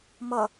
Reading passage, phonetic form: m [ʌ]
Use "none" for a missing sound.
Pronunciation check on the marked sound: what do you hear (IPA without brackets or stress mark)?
ʌ